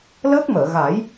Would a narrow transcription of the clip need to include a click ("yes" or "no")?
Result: no